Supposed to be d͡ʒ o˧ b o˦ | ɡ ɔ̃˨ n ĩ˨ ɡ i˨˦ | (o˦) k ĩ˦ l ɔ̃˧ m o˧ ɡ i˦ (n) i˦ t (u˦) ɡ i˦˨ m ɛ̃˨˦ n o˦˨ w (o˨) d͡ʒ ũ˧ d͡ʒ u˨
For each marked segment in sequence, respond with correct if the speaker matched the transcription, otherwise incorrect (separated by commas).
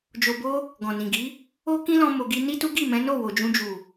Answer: correct, correct, correct, correct